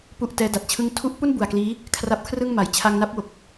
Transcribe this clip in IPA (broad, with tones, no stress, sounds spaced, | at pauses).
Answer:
p u˨˩ ʔ t ɛː˦˥ d a˨˩ t̚ t͡ɕʰ ɯ˥˩ ŋ tʰ u˥˩ ʔ p u˥˩ n b u˨˩ a̯ k l iː˦˥ | kʰ r a˦˥ p̚ kʰ r ɯ˥˩ ŋ m a˨˩ j t͡ɕʰ a˧ ŋ n a˦˥ p̚ w o˨˩ k̚